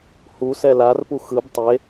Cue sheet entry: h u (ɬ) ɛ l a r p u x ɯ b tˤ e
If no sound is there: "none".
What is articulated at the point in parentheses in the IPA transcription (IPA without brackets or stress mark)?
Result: s